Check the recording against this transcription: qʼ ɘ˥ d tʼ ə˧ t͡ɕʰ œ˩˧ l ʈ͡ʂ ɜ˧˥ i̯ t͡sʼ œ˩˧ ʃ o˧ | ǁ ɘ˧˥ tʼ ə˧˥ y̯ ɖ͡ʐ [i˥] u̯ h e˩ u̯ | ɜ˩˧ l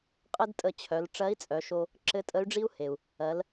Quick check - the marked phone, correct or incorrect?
correct